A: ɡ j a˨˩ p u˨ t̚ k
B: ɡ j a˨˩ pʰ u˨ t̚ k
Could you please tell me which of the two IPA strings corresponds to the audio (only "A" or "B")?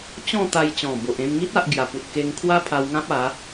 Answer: A